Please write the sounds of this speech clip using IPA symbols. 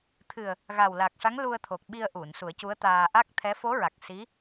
t̪ʰɨ˨˩ə̯ | ɣa˨˩wla˨˩k̚ʂa˧˥ŋ lu˧ə̯t̪ʰo˨˩k̚ɓi˧ə̯ʔu˨˩˨n su˨˩˦ə̯cu˧˥ə̯t̪aː˧ ʔa˦˥k̚t̪ʰɛ˧˥ fo˧˥ɹa˨˩k̚ si˧˥

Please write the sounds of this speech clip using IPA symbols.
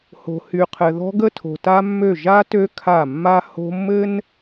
ho̤˨hy˨qʰɘ˨ðɔ̤˦ ɡə˦tʰo̤˨ta˦mːø˦˨ ʒa˦tø˦ kʰa˦˨ mːa˦ ho̤˦ mːɘ˦n

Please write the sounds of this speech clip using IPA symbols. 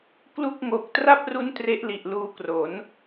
klu˥˩k̚ŋo˨˩k̚ tra˥˩p̚ru˦˥n tre˦˥ʔli˨˩ʔluː˧kro˩˦n

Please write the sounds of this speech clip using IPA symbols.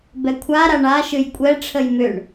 bɛkʷʰa ɾaɳa ʃɨjkʷʼɛ ʈ͡ʂʰəjmʏɳ

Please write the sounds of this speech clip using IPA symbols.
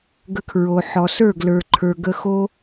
ɡə˧kʰɹo˨ħɔ˨ sə˞˦˨ɡlə˞˨ǃʰə˞˨ɡə˧ xo˦

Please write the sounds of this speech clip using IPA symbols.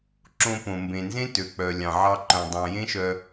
ǁõ˧põ˨mbẽ˨nzẽ˦ tø˨k͡pœ˨ lʲɑ̃˨ʕɑ˧ǃœ̃˨ dˤɑ̃˨jẽ˦ʃœ˧

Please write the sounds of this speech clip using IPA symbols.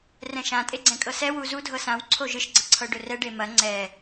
rɛ̃ʃã tʼeɡ͡ǀɛ̃kʼɤsɛ wuzu dʱɤsãw ǀʰoʒɨʃ ɡ͡ǀɐǀʰɤɖɵrɛ ɖemɐ ŋ͡ǀɛ

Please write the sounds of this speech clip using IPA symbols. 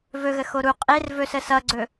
vɵɣə xoɾu qʼer vɵs əsʌɡ͡ǀɵ

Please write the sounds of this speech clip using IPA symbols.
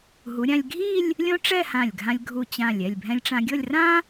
ɦu˩˧ɾʲã˧lʲ ɡʱi˥˧lʲ | lʲõ˥ʈ͡ʂɛ˥˧hã˧˩lʲɡʱã˧lʲ ɡʱu˧˩t͡ɕã˧˩lʲ ɛ˧˩lʲbʱɛ̃˧lʲʈ͡ʂã˧ɡʲɤ˥˧lʲ rã˥

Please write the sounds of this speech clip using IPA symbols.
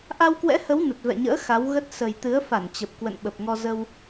ʔa˧wkwɛ̰˧˥hə˨˦w nə˨˩t̚vɛ̰˧˨ɲə̰ː˧˥ xa˨˦wɣə˦˥t̚ sə˨˩jt̪ɨ˨˦ə̯fa˧˩nt͡ɕə˨˩p̚ kwə̰˧˨nɓə˨˩p̚ŋɔ˧ zə˧w

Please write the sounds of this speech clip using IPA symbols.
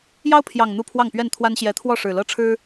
jɑ˦ʊ̯pʰjɑ˨˩ŋ n̪u˥˨pʰwɑ˥˨ŋpɥɛ˥˨nt̪ʰwa˦n ɕjɛ˨˦t̪ʰwɔ˥˨ʂɻ̩˨˩lɤ˥˨ ʈ͡ʂʰɻ̩˦

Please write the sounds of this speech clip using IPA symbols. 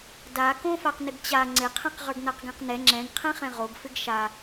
da kõfaqnɪɡt͡ɕa ŋ͡ǀɪqʰɛ̃q ʁə˞ɡnaqɡɛ̃qnɛ ŋ͡ǁɛ̃ɡqʰɛ̃χɛ̃ ʁoɡfɪɡ ʃa

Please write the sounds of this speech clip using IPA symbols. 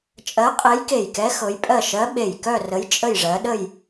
t͡ʃʼɜ˧˥qʼe˧˥jke˧˩jkɛ˧˥ xɤ˧˥j pʼɜ˥˧ ʃɜ˧˥ɓe˧˩jkœ˥˧rə˧˥j t͡ʃʼə˥˧jʐɜ˧˥ ɗə˥˧j

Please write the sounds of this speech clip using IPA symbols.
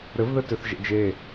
ɾɘvðɘtøθ ʒḛd͡ʒe

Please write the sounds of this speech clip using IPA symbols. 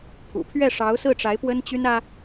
pʰṵ˨˩pʰɥɛ˥˩ ʂɑ˧˥ʊ̯sɹ̩˥˩ʈ͡ʂa˧˥ɪ̯ pwə˥nt͡ɕy˥nä˥

